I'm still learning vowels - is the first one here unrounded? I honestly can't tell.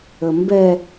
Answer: yes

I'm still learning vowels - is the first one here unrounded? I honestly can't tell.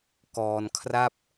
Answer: no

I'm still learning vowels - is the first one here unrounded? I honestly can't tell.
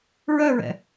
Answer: no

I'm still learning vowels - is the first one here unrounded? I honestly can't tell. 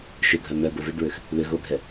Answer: no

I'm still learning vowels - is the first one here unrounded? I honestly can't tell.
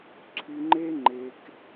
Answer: no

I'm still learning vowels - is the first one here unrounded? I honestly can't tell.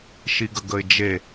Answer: yes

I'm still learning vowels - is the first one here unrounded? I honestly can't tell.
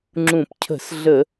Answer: no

